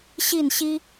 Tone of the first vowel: falling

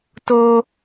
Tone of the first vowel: high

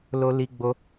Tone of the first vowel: high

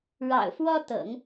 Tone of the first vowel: low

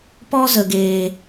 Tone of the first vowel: high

